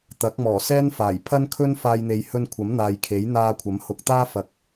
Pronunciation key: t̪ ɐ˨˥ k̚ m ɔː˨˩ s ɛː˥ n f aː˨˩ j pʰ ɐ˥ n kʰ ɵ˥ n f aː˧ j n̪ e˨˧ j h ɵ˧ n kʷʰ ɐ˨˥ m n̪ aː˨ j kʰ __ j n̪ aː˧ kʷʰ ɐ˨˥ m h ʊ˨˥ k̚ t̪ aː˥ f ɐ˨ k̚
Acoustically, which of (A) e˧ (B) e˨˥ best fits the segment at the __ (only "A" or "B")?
B